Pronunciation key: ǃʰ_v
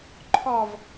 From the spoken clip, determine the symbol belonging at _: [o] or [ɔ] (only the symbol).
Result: ɔ